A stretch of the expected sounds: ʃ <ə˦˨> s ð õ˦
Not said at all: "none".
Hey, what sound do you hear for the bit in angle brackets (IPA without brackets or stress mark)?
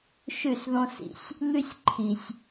ʉ˦˨